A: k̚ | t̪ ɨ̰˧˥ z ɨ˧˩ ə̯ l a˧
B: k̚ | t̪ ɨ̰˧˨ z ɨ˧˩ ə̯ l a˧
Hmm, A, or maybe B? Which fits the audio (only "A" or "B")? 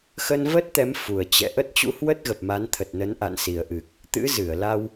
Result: A